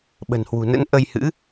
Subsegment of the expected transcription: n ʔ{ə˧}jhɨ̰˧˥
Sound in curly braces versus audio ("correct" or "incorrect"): correct